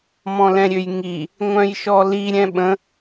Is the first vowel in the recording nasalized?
yes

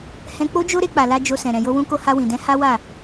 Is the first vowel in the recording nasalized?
yes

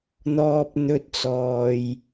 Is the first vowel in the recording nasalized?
no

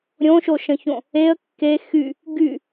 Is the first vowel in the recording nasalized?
yes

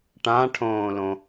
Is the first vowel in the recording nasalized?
yes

